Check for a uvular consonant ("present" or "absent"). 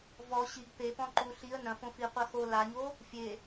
present